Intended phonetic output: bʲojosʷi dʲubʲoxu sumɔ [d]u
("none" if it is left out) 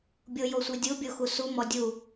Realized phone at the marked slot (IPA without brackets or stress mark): dʲ